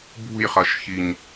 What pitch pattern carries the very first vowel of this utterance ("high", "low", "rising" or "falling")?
falling